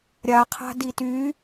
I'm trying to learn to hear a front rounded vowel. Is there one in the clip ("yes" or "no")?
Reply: yes